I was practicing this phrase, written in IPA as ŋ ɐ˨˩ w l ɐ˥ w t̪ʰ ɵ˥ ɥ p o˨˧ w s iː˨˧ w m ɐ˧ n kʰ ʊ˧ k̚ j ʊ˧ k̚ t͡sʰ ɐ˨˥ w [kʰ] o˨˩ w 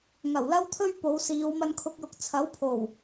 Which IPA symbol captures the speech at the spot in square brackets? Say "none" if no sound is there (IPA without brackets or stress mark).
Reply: pʰ